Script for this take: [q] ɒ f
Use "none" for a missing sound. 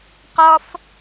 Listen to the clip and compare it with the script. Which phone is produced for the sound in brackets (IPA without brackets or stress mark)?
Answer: q